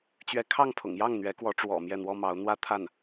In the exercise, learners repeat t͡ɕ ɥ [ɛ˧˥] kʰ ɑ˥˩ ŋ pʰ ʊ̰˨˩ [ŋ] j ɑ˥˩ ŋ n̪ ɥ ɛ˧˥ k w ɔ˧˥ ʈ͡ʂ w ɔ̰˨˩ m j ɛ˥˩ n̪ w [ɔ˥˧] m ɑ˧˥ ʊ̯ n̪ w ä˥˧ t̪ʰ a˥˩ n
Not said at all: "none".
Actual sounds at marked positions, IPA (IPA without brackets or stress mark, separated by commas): ɛ˧˥, ŋ, ɔ˥